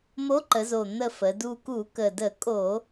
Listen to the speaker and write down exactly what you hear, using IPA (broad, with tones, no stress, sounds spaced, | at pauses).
m o˧˥ ǃ ə˩˧ z o˨˩ n̪ ə˦˨ f ə˩˧ d u˦˨ k u˧˩˧ k ə˨˩ d ə˧˩˧ kʼ o˧˩˧